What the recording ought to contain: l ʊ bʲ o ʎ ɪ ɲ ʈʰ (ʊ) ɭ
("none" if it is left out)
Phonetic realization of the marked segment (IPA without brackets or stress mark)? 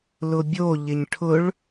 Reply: ʊ